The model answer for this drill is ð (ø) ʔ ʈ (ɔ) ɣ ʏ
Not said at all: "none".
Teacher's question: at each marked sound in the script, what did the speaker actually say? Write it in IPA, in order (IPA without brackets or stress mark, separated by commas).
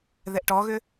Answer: ɛ, ɔ